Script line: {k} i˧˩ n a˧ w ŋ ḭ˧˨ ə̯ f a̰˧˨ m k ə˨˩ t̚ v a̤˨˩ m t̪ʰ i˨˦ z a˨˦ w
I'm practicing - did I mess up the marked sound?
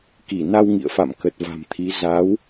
no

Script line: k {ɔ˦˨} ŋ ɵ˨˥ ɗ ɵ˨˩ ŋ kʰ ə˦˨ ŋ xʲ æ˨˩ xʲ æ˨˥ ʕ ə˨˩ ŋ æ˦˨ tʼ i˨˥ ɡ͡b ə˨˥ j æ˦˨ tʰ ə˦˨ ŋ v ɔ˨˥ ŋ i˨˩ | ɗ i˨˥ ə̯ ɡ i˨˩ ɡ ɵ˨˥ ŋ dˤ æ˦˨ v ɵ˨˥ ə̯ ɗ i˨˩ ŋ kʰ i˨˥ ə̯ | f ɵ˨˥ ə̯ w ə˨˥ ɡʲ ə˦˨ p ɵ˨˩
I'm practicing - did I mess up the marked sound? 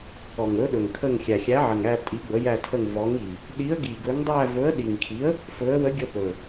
yes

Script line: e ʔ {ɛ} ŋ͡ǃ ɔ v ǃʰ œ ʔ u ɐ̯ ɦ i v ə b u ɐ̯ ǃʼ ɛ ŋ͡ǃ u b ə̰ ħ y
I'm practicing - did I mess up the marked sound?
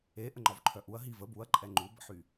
yes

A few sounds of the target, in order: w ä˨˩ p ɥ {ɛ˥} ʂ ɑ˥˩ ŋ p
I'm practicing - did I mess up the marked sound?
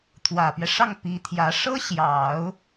yes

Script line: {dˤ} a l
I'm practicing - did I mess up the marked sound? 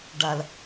yes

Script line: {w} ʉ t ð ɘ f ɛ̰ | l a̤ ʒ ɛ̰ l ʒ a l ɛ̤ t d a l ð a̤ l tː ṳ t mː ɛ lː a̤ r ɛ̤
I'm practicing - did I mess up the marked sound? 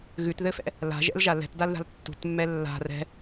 yes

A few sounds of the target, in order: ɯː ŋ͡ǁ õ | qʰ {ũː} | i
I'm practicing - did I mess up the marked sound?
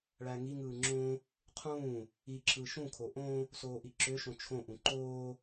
no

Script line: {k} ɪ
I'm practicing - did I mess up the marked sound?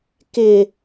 no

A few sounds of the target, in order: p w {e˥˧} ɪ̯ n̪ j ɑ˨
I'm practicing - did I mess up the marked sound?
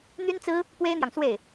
yes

